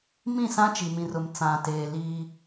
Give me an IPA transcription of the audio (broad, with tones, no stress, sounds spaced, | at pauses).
m ĩ˦˨ s ã˦ t͡ʃ i˨ m ĩ˨ r ʊ˨ m t͡s ã˨ t eː˨ l iː˦